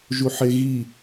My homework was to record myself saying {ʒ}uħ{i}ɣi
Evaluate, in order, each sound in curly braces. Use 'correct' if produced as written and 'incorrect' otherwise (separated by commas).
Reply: correct, incorrect